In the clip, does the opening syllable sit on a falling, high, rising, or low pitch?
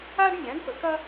high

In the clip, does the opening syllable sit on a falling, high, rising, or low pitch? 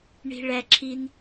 high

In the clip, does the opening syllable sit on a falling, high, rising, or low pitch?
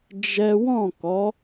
high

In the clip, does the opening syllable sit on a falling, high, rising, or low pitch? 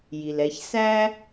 low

